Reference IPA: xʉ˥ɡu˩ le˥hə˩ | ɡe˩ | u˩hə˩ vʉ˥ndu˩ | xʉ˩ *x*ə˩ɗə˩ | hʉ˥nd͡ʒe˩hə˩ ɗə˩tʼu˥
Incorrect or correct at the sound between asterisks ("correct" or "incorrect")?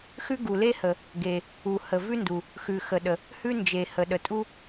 correct